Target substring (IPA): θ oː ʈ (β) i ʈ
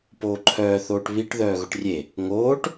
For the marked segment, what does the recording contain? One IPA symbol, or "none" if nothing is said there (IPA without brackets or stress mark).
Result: β